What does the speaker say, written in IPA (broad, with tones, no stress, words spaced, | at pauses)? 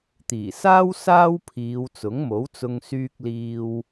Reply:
t̪iː˨˩saː˥w saː˥wpʰiː˨˧w t͡sʊ˨˥ŋmo˨˥wt͡sʊ˧ŋ syː˥k̚liː˥w